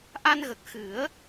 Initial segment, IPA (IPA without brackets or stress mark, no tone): ʔ